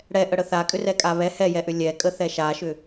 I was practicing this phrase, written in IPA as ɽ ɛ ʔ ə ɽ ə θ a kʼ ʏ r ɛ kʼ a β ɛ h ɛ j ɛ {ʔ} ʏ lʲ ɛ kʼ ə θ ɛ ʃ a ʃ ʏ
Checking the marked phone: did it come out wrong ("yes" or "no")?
no